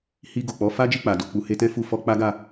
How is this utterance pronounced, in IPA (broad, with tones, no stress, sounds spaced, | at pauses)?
h i˧ ɡ o˨ k͡p ɔ˨˦ f a˦ d͡ʒ i˦˨ k͡p a˨ d o˧ k͡p u˧ h e˧ t ɛ̃˦ f u˧ f ɔ˧ k͡p a˦ ɡ a˦˨